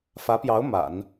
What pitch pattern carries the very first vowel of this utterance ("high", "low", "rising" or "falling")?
rising